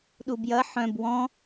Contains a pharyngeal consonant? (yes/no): yes